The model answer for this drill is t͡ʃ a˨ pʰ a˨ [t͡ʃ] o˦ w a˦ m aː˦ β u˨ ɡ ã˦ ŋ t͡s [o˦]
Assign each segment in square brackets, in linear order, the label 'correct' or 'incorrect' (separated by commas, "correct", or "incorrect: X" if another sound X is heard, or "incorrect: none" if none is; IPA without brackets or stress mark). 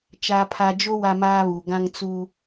incorrect: d͡ʒ, incorrect: u˦